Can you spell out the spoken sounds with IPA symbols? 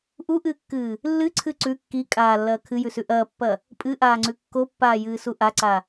ʔ u ʔ ɨː kː ɨː | lː ɨ ǀʰ ɨ ǀ ʉ kː i kʼ aː lː ɐː kʰ ɨ j ʉ s ʉ ʔ ɐː pː ɐ | pʼ ɨ ʔ aː ŋ͡ǀ ʉ kː o pː aː j ɨː s u ʔ a ǀ a

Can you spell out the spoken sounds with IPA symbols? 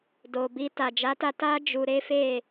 d o˨ b i˧ t a˨ d͡ʒ a˨˦ t a˧ t a˦ d͡ʒ u˧ ɾ e˦ f e˦˨

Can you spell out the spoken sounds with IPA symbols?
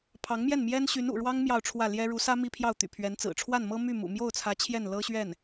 pʰ ɑ˧˥ ŋ m j ɛ˥˩ n m j ɛ˥ n ɕ y˧˥ n ṵ˨˩ ɻ w ɑ˥ ŋ m j ɑ˥˧ ʊ̯ ʈ͡ʂʰ w ä˥˩ l j ɛ˥ ɻ u˧˥ s ä˥ m i˥ pʰ j ɑ˥˩ ʊ̯ t̪ y̰˨˩ pʰ ɥ ɛ˧˥ n t͡s ɹ̩˨˩ ʈ͡ʂʰ w a˥˩ n m ɤ˥ m y˥˩ m ṵ˨˩ m j o˥˩ ʊ̯ t͡sʰ ä˧˥ t͡ɕʰ j ɛ˥˩ n l ɤ˥ ɕ ɥ ɛ˥˩ n

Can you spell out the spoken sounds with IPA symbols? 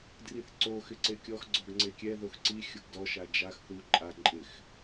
d r i θ ǀ o x ɪ ǀ e kʲ ɔ x ɡ͡ǀ ɔ ɡ ŋ͡ǀ e kʲ ɛ ð o x ǀ i xʲ ʊ ɡ d ɔ ʃ a d͡ʒ a x θ u ǃʼ a ǃʼ ɪ x

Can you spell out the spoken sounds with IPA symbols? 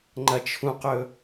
ŋ͡ǃ ɐ t͡ʃʰ ũ q ɵ

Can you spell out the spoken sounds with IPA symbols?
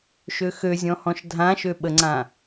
ʃ ø x ø zʲ ɔ̃ h ɔ̃ ʃ dʱ ã ʃ ø ɓ ə ŋ͡ǀ ã

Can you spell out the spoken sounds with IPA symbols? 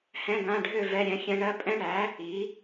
h ɛ̃˧˥˧ ɡ ã˧˥˧ ɖʱ ø˥˧ v ɛ˧˥˧ ɾʲ ɛ̃˩˥ xʲ ɛ̃˦˥ ɳ ɜ˦˥ pʼ ɛ̃˦˥ ɳ æ˩˥ | i˩˥

